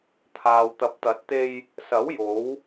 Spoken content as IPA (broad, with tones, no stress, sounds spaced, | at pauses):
t̪ʰ aː˨ w t̪ ɐ˨˥ p̚ t̪ ɐ˨˥ t̚ t̪ e˧ j | s ɐ˨˥ w j o˨˥ w